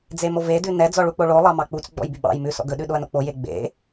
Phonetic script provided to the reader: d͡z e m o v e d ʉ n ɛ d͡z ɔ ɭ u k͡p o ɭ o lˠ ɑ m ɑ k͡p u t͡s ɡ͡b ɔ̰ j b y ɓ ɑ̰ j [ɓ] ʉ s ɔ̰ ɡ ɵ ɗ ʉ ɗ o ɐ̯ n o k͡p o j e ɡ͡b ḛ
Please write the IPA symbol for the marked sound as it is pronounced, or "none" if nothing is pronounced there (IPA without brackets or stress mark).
m